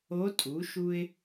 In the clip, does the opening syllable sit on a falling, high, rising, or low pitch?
rising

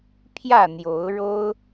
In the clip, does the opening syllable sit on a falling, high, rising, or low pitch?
falling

